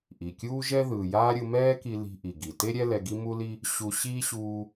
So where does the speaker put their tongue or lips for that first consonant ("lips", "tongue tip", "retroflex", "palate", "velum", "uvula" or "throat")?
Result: throat